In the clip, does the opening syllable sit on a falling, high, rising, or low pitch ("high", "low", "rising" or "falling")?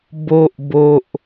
high